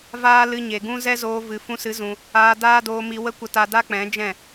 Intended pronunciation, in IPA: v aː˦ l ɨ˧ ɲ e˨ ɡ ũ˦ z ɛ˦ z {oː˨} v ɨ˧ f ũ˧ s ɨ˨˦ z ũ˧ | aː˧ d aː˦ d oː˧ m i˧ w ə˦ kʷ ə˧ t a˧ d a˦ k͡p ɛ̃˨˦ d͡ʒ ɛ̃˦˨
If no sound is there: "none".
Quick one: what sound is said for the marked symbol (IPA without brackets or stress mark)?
oː˧